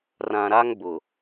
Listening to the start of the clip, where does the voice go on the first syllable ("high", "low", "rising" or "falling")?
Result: low